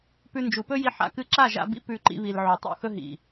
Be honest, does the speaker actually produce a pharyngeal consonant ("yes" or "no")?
yes